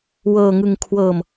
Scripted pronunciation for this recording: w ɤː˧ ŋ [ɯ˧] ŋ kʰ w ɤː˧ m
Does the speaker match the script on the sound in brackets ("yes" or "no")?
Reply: yes